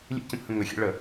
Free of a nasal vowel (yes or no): no